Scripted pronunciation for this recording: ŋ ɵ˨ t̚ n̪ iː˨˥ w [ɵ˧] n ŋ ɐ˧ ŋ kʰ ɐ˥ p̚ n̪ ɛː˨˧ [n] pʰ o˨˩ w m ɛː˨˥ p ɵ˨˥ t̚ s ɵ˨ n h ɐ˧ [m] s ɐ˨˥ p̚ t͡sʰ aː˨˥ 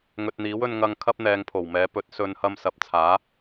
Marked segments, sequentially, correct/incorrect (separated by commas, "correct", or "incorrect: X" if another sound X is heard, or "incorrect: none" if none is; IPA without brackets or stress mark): correct, incorrect: ŋ, correct